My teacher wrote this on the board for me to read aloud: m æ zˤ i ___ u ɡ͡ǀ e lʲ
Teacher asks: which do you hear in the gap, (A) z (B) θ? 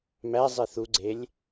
B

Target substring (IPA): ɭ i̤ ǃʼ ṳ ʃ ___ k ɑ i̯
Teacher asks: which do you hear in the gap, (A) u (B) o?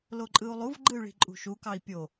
A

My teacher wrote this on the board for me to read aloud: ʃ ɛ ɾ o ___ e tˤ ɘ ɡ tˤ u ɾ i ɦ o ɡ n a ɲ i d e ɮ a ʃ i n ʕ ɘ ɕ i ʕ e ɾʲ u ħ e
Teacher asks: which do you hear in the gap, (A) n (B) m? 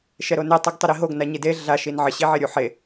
A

